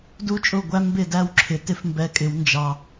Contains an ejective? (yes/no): yes